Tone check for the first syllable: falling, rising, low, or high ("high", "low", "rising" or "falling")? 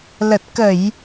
low